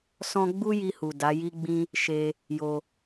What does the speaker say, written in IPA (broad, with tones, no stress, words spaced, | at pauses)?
sɔ̃˦ ɡ͡bu˦ji˧hu˨ da˨˦ji˦ɡ͡bĩ˦ | ʃe˧ | jo˧